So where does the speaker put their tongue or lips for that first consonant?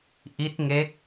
throat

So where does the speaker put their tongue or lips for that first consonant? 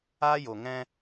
palate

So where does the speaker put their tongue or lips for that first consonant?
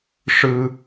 retroflex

